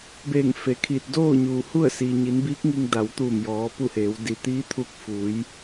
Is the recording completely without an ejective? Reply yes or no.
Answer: yes